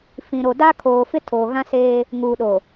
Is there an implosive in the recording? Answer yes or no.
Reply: yes